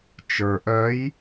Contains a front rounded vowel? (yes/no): yes